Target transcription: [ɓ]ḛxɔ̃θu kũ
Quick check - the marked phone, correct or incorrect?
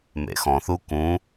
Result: incorrect